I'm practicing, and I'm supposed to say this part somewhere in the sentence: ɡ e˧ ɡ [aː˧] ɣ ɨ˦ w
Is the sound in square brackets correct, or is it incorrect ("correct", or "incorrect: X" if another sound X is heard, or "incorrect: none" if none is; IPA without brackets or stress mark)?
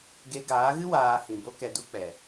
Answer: incorrect: aː˨˦